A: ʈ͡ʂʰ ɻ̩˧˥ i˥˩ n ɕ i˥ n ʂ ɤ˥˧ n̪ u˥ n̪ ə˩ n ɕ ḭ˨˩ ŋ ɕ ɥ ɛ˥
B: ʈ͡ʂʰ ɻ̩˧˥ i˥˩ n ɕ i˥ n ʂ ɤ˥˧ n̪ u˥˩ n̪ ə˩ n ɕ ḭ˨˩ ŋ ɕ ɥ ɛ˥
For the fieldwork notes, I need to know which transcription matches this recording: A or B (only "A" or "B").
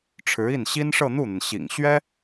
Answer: B